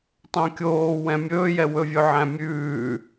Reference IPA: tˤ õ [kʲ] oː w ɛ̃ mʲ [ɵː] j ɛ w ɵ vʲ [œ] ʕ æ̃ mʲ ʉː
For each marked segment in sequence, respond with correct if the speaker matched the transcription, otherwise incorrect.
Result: correct, correct, incorrect: ɵ

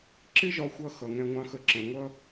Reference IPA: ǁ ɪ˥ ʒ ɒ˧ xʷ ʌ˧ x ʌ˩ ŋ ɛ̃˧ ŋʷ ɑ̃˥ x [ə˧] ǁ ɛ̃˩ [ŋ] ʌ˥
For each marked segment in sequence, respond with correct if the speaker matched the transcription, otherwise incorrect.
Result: correct, incorrect: ŋʷ

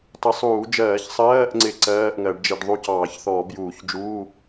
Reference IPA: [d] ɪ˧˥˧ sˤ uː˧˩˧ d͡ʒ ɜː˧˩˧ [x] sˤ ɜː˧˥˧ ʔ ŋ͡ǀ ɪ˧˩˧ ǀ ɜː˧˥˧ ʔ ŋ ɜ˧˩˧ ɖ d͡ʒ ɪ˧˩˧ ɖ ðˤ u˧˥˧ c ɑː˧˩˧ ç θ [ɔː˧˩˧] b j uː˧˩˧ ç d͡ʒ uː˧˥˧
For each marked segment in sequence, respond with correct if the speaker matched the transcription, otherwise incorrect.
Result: incorrect: tˤ, incorrect: ç, correct

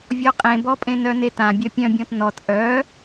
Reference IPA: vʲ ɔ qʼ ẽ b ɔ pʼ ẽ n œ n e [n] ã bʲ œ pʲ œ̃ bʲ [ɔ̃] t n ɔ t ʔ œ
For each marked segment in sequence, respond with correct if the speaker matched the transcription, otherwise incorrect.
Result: incorrect: t, correct

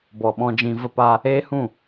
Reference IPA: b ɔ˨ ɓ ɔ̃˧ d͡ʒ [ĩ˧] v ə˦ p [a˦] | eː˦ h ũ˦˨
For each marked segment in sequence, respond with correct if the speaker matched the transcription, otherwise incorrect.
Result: correct, correct

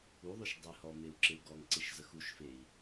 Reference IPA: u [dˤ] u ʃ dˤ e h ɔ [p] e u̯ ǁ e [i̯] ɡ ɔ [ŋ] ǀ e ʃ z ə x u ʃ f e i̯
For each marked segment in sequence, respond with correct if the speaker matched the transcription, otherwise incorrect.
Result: incorrect: ðˤ, incorrect: m, incorrect: u̯, correct

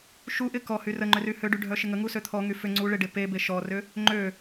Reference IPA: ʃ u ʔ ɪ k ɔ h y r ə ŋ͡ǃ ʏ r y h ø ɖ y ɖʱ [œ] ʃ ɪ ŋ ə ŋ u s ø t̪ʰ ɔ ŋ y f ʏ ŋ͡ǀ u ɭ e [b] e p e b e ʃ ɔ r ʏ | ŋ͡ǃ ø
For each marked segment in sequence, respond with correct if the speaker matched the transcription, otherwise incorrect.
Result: correct, incorrect: ɖ

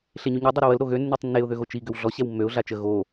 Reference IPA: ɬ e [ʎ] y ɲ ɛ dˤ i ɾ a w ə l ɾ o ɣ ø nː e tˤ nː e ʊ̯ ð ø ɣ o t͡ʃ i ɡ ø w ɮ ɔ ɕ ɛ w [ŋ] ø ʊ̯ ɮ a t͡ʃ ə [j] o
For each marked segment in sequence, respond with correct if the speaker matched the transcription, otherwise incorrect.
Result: incorrect: ɲ, incorrect: mː, incorrect: ɣ

